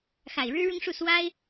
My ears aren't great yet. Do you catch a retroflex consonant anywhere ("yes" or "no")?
yes